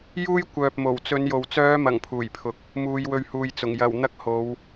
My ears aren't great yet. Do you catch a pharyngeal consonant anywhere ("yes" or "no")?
no